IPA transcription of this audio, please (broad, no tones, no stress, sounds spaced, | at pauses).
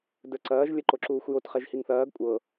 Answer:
d ə˞ ǀ ɐː ʒ lʲ ɐ ǃ o ǁ uː xʷ j o t χ ɛ ʒ h i ŋ θ ɐː ɡ kʷʼ ɤ